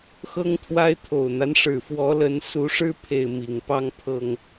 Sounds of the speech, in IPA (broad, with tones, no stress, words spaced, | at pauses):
xɤ˦ŋt̪ʰwa˦ɪ̯t̪ʰo˨˩ʊ̯n̪a˦n ʂɻ̩˨˩fwɔ˨˦ lə˨˦nsu˨˦ʂɻ̩˦ pʰe˥˨ɪ̯mi˨˩ŋ pɑ˦ŋpʰɤ˨˩ŋ